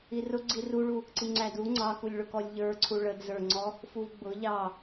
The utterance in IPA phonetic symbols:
irʊ ɡ͡ǀiruɭu | ǀiŋ͡ǀædu ŋ͡ǀɑkulʲɭʊkɔlʲ ʎə˞ ǀʰuɭədzə˞ŋ͡ǀɔ | fuvɡ͡bʊ ʎɑ

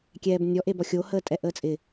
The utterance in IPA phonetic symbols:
kʲɛːbnʲɔʔ ebɔxʲo həːtʼɛʔəːt͡sʼɪ

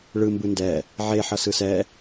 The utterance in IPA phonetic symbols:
ɭɯ mbɯndɛ | ʕe ħʌsɯsɛ

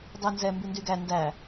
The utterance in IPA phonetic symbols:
dˤʉnzɛ mbyndyɡæ ndæ

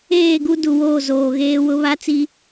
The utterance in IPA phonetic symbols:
eː˦˨ɡu˦ du˨woː˦˨zoː˨ɣeː˦ wʊ˦ βa˦ t͡si˦

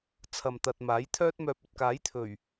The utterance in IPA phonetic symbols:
t͡sʰɐ˨mt̪ɐ˨t̚maː˨˥j t̪ʰœː˥t̚mœː˧p̚ ɵ˨t̚kaː˨˥jt̪ʰɵ˨˩ɥ

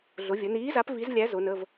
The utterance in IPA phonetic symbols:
ɮʊ˩˧vʲə˩˧niː˨˥za˨˥p vi˨˥zlʲæ˨˥ zʊ˩˧nə˩˧˩v

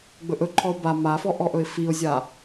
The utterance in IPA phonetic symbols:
ɡ͡bɵʔɵǃʰɔʊ̯ ba mafɔ ʔɔʔɵɪ̯fiʊ̯zʲa

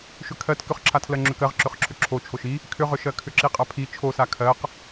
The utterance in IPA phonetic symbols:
ʃʏkʰɜt kʏχǁʰatʰlɜ ŋ͡ǁʏkɜʁ ǁʏχǁʰʏǁʰo t͡ʃʰoʃi | kʰʏʁʏʃɜkʰʏ ǁiqʼapʰi t͡ʃʰosa kʰɜq

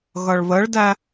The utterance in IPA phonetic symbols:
ɣʌɭβəɭdæ

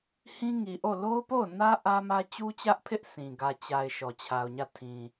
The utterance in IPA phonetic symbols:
hĩ˦ŋi˨ʔo˦˨ lo˦ʊ̯po˦˨ʊ̯nä˦ ʔä˦mä˦ t͡ɕu˦t͡ɕä˦ʔpʰɪ˦ʔ sʰĩ˨ ɡä˨t͡ɕa˨ɪ̯ ʃɔ˨t͡ɕʰa˨ʊ̯ɲä˦˨ tʰĩ˨

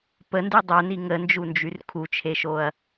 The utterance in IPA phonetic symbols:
pəndy dˤœni ŋənd͡ʒund͡ʒyr kʰut͡ʃʰeʃoɐ̯

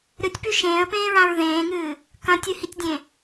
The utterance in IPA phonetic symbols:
ɾɨtʲpʉ ʃẽːə̯pẽːɹãɹ ðẽːŋɨː | kɐ̃tʲɨhitʲdʲẽ

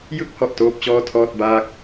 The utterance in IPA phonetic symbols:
jɯ˥˩k̚hɔ˨˩ʔ toː˥˩p̚t͡ɕɔː˥˩tʰɔː˥˩t̚baː˥˩k̚

